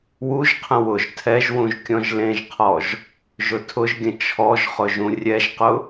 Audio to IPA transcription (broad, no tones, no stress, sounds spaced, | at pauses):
w u ʒ qʰ ə̃ w ʊ ʒ tʰ ɛ ʒ w ũ ʒ kʲ ɔ̃ ʒ l ẽ ʒ qʰ ɔ ʒ | ʒ ʊ tʰ ʊ ʒ ɡʲ ə̃ t͡ʃʰ ɔ ʒ χ ʊ ʒ ũ rʲ ɛ ʒ q ʊ